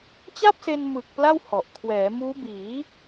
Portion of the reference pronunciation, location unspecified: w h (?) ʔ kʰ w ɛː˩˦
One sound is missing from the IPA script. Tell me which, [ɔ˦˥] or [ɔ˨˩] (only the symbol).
ɔ˨˩